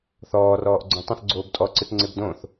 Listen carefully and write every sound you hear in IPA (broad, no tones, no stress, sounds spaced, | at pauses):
θ ɔː r ɔː ʔ ɡ͡ǀ õ tˤ ə̃ θ ɡ͡ǀ oː b tʼ ɔ ǀ ɯ t ŋ͡ǀ e b d õ θ